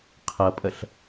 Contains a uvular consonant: yes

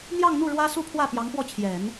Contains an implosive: no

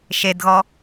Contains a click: no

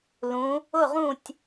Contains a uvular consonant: yes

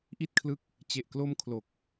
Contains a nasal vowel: no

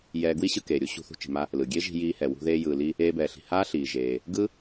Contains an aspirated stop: no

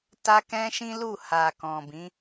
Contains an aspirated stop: no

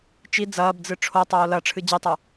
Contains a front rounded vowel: no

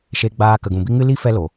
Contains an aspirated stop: no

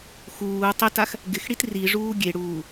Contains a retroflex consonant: yes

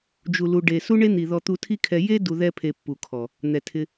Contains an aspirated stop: yes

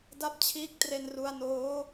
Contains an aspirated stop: yes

